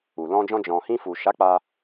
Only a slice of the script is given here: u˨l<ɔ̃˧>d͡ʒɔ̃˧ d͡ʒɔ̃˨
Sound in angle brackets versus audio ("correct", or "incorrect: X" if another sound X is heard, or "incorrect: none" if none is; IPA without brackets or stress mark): correct